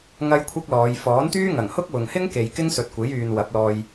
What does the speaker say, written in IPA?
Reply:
ŋ ɐ˥ j kʷʰ ɐ˥ k̚ l ɔː˨˧ j f ɔː˨˥ n t̪ yː˥ ŋ ɐ˨˩ ŋ h ʊ˥ k̚ w ʊ˨ ŋ h ɪ˥ ŋ k e˨ j k ɪ˥ ŋ s ɵ˨ t̚ kʷ e˨˥ j yː˨ n w ɐ˨˥ p̚ l ɔː˧ j

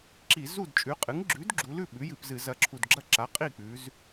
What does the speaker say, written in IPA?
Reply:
ǁ i˧˩˧ z u˥˩ d t͡ʃʼ ʉ˩˥ qʼ ɨ˩˥ ŋ ɡ͡ǁ ʉ˩˥ d ɡ͡ǁ u˩˧ l ʉ˥˩ ɓ ʉ˩˥ j ɨ˧˩˧ p z ɨ˧˩˧ z ɐ˨˩ ǁʰ u˨˩ d ɡ͡ǁ ɐ˥˩ ǁ a˩˥ qʼ i˥˩ k͡p ʉ˩˧ z

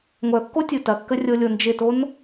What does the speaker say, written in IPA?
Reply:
ŋʷ œ kː o tʲ u t ɐ kː ə rʲ o lʲ o n d͡ʒ ɪ t o n

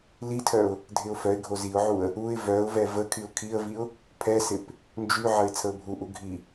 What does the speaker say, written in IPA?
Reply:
l i tʰ œ ʊ̯ | dʱ ɪ ʊ̯ f œ ɪ̯ ɡʱ o z i ʊ̯ ʕ u ə̯ | u ɪ̯ v œ ʊ̯ v ɛ v ə kʰ y ʊ̯ kʰ i ə̯ v i ʊ̯ | pʰ ɛ s ɪ p | n d͡ʒ y ʕ ə ɪ̯ t͡sʰ ə ʊ̯ bʱ u ʔ u ɡʱ i

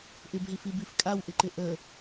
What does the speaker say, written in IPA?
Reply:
ʔ ɪ b ɦ i f i b i f kʼ a w ʔ ɪ ǃ ɪ ʔ ə

